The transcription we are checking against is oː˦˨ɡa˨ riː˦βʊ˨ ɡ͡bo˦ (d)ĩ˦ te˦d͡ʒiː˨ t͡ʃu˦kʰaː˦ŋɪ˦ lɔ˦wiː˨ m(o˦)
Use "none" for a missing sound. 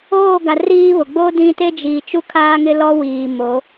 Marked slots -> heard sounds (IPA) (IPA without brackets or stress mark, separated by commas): d, o˨˦